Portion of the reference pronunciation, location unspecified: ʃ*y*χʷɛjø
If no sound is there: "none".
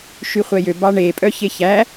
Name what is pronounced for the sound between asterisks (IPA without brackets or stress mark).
y